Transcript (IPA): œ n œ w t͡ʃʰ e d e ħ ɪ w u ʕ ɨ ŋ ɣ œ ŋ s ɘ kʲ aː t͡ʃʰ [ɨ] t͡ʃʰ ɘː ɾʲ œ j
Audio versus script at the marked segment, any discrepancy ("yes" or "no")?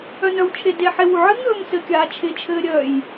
yes